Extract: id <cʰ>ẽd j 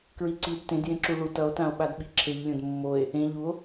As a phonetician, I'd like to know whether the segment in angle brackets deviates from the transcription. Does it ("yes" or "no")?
yes